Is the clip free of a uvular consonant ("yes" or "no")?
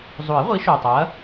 no